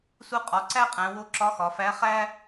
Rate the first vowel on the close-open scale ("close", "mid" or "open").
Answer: close